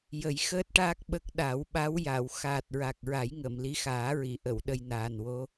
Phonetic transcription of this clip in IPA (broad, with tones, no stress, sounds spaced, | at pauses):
j ə˨˩˦ j x əː˦˥ t̚ ʈ aː˦˥ k̚ ɓ ə˦˥ k̚ ɗ a˨˩˦ w ɓ a˧˥ w j a˨˩˨ w x aː˨˩ t̚ ɹ a˨˩ k̚ ɹ a˨˩˦ j ŋ ə˨˩˨ m l i˧˥ x aː˨˩˦ ɹ i˨˩˨ ʔ ə˨˩˨ w ɗ ə˧ j n aː˨˩ n w o˧˥